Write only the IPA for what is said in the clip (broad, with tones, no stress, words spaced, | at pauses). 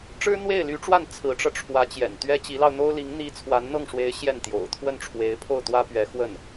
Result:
ʈ͡ʂɻ̩˥n̪we˥˩ɪ̯ly˧˥ʈ͡ʂwa˥˩n t͡sʰɹ̩˧˥ʈ͡ʂɤ˧ʈ͡ʂʰwä˧˥t͡ɕjɛ̰˨˩n t̪ɥɛ˥ t͡ɕi˧˥lɑ˧ʊ̯n̪o˥ʊ̯li˧˥ŋ n̪i˥ t͡sʰwa˧˥nn̪ɤ˥˩ŋʂwe˧˥ɪ̯ ɕjɛ˥˩nt̪jo̰˨˩ʊ̯ t̪ʰwə˥˩nʈ͡ʂʰwe˧˥ɪ̯pʰo˥˩ʊ̯ t̪wä˥pɥɛ˧˥xwə˥˩n